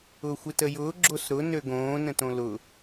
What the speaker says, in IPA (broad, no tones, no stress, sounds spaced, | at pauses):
ʊː xʷ ɪ t ə j ʊː ɡ͡ǁ o s ɾ ʊ n ø ɡ õː n ə̃ t õ l ʊ